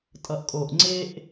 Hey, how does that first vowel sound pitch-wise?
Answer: low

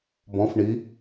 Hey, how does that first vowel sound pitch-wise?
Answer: rising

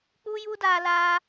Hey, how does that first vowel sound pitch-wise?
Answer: high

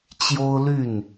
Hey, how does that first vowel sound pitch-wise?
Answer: high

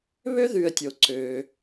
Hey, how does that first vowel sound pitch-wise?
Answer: high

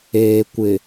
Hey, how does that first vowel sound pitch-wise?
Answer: low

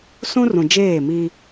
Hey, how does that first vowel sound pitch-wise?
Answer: high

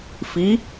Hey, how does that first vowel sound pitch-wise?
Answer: rising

